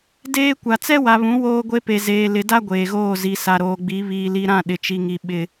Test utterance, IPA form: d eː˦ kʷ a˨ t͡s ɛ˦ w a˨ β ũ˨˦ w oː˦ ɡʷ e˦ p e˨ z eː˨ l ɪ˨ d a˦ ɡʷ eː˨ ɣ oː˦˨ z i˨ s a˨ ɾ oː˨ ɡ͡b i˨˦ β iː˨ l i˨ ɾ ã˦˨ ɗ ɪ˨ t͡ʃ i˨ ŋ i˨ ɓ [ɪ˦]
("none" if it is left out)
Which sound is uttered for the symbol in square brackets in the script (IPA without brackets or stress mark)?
ɪ˦